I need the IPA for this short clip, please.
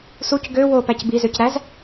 s u c ɡ ø w o p æ c b i z ø c ɾ æ z

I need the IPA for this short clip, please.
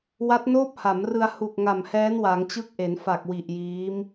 w a˦˥ t̚ n oː˥˩ p̚ h a˩˦ m r ɯ˧ a̯ h u˨˩ k̚ ŋ a˨˩ m h ɛː˦˥ n w a˩˦ ŋ t͡ɕ ɯ˦˥ k̚ ʔ e˩˦ n f a˨˩ k̚ w i˨˩ ʔ j iː˦˥ m

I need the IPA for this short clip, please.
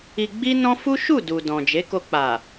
i˧ ɡ͡b i˦ n ɔ̃˦ f u˦ ʃ u˦˨ d u˨ d ɔ̃˨ d͡ʒ e˨˦ k o˧ k͡p a˨

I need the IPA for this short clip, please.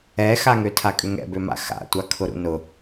ɛ x a ŋ ø tʰ a kʼ ʏ ŋ ɛ̰ b ø m a̰ x a̰ tʷ a kʰ ʊ ɾ ṵ n ʊ

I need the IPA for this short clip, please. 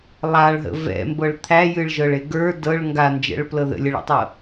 lˠ a ɭ ɦ ə̰ v ɛ̰ m b ɤ ɭ t̪ʰ æ j ɨ ɭ ʒ ɤ ɭ e ɡ ə˞ d ɤ ɭ ŋ ɡ a n d͡ʒ ɛ̰ ɭ p l ɤ ð ə̰ lʲ ə ɭ ɛ̰ tˤ ɤ

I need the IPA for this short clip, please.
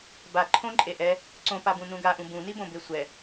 b a ǃʰ õ ǃʼ e ʔ ɛ | ǀ õ p a b ũ n ũ ɡ a ʔ ũ b ũ n i b õ b e sʷ ɛ

